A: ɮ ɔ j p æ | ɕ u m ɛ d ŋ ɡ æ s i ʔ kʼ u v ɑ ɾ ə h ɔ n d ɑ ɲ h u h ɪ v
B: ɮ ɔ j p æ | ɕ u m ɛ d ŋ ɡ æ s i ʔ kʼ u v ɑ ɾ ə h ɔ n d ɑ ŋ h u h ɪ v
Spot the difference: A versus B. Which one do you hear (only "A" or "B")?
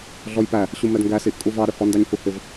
A